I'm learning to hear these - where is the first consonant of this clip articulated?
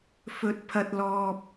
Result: lips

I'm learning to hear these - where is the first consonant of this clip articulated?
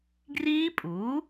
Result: velum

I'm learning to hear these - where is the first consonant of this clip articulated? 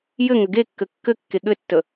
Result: palate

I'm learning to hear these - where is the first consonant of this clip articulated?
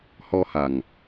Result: throat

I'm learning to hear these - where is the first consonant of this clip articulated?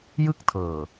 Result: palate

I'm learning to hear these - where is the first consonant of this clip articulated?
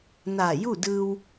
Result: tongue tip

